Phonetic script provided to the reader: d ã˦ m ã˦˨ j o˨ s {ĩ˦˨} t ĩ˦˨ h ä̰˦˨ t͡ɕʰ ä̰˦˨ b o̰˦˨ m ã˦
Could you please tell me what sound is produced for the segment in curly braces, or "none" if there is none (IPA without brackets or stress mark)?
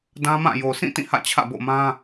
ĩ˦˨